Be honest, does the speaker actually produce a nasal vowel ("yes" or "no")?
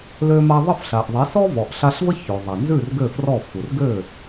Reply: no